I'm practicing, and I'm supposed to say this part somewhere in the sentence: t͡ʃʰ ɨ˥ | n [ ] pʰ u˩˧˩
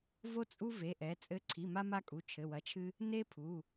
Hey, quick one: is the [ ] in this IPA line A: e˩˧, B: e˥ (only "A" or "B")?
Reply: B